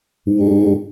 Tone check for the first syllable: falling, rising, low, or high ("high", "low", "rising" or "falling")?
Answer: low